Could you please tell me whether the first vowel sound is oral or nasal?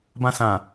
nasal